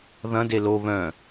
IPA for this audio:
ðɐ̃de lo βœ̃

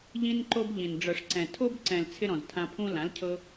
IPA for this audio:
ʎĩ˦nǃo˦bʎĩ˨n ɖ͡ʐɤ˨ʂǀɛ̃˨tʰo˦b ǀɛ̃˨l t͡sʰɪ˦ɾɔ̃˨ztʰã˧pʰũ˦ lã˨˦lcʰɤ˧

